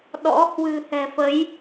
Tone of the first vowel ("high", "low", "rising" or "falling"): rising